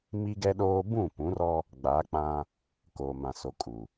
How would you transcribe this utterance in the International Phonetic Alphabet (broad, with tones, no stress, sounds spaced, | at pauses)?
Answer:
m i˦ ɡ ɛ˦ ɗ oː˦ b ũ˦˨ p ũ˨˦ r ɔ˦ | ɡ͡b a˨˦ k͡p ã˦ | k oː˨ m ã˨ s o˨ kʼ u˨